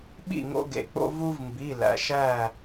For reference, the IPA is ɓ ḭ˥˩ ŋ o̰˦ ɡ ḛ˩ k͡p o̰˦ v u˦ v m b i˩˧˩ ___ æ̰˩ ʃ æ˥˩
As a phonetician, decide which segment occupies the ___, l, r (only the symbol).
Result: l